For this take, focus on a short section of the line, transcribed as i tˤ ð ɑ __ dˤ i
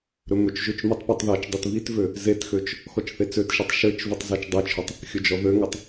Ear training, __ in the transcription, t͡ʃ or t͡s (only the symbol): t͡ʃ